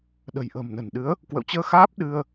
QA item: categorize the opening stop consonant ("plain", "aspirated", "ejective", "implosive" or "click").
implosive